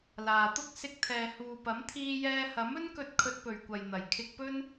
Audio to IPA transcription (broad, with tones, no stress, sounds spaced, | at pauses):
l aː˨ t̪ ʊ˥ k̚ s ɪ˧ k̚ t̪ʰ ɛː˨ h uː˨ p ɐ˨˥ m t̪ʰ iː˧ j ɛː˧ h ɐ˨˥ m ɵ˥ n k ɵ˧ t̚ kʰ ɵ˧ t̚ p ɵ˨ ɥ kʷ ɐ˨ j n̪ ɐ˨˩ j kʰ ɪ˧ k̚ p ɵ˥ n